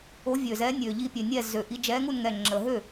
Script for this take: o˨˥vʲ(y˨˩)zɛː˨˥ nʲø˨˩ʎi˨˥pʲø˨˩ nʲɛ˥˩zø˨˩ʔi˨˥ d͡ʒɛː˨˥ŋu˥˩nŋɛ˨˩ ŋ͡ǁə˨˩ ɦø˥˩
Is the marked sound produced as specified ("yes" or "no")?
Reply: no